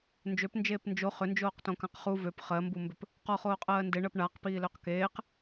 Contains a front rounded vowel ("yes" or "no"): yes